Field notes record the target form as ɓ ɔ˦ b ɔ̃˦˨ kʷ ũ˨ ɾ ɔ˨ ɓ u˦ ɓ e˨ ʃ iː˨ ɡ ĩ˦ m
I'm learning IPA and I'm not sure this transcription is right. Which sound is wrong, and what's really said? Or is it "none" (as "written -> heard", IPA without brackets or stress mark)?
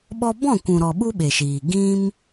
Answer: none